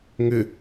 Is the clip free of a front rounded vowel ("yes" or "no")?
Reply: no